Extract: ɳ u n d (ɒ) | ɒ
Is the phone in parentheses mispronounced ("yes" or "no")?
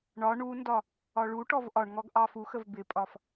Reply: no